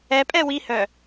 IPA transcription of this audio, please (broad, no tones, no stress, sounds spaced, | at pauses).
ɛ pʼ ɛ w i h œ